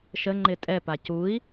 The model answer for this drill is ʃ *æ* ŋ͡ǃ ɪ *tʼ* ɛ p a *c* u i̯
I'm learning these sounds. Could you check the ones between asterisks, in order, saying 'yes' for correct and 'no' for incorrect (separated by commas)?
no, yes, yes